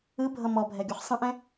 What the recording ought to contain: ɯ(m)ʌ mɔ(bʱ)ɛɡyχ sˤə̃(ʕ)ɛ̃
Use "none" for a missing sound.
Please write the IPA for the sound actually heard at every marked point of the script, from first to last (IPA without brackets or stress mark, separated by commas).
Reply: bʱ, bʱ, ʔ